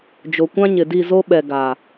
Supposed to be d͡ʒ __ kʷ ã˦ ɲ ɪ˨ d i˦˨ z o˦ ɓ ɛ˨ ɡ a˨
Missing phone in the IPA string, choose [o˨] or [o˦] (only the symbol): o˨